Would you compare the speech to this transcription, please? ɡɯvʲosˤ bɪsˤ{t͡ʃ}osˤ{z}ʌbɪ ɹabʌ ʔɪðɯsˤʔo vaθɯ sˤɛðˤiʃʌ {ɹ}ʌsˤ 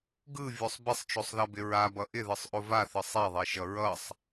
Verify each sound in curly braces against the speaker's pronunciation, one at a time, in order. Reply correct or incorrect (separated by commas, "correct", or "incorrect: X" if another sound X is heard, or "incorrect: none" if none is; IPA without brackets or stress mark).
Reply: correct, incorrect: ð, correct